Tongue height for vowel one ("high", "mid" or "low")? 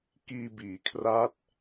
high